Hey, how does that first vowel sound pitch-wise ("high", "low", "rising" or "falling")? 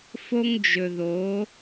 high